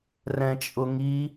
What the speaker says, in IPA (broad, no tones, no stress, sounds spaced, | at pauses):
r ɛ̃ t͡ʃʼ ʊ ŋ i